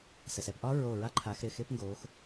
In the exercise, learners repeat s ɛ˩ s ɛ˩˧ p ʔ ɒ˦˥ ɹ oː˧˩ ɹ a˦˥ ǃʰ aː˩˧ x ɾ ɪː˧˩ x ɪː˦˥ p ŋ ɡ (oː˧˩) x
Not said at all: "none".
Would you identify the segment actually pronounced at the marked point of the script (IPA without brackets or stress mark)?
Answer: oː˩˧